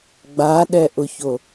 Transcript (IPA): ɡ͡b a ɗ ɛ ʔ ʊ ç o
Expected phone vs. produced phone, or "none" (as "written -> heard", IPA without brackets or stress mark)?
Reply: none